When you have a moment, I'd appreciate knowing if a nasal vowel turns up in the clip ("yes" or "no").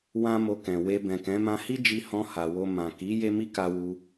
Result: yes